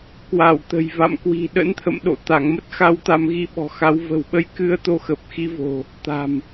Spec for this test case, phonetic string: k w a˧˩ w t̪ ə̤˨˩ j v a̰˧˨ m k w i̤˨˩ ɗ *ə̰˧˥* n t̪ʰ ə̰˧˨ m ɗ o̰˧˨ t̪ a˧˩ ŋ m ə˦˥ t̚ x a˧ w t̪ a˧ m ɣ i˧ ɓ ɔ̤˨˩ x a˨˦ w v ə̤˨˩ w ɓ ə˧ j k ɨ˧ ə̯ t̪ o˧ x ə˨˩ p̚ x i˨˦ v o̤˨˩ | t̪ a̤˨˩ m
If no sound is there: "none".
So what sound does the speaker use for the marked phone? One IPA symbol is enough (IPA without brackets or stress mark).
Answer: ə̰˧˥